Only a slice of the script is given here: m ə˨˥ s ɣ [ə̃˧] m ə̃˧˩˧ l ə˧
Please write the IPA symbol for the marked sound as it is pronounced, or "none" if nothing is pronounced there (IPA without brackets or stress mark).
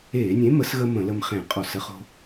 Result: ə˧